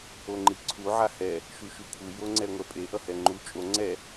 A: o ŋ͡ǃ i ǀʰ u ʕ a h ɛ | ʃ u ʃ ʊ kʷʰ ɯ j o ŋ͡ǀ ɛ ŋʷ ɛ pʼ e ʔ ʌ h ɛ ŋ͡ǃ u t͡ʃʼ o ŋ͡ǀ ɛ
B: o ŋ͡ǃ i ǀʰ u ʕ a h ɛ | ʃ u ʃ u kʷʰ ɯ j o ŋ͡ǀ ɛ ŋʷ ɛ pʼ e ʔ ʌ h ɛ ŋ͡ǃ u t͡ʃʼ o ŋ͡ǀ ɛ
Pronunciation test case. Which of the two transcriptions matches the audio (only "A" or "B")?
B